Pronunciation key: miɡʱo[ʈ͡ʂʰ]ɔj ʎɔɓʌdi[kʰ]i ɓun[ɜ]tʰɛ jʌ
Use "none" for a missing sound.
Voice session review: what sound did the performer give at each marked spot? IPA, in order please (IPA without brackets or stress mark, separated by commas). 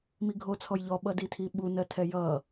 t͡sʰ, tʰ, ɜ